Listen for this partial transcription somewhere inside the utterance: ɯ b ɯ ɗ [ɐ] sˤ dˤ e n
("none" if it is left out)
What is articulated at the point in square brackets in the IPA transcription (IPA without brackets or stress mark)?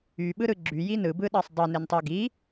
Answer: ɑ